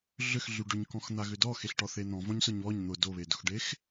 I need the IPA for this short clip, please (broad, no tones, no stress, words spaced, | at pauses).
ɮʏx ɮyɖʏɲkɔ̃x n̪aɣʏdɔ xeɬʈɔθen̪ɔ̃ vɔ̃ɲsʊɲβɔɲ n̪ʊ doβedʊxɖex